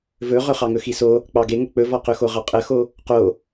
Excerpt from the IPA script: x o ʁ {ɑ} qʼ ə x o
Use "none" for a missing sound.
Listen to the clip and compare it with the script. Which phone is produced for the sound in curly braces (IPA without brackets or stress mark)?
ɑ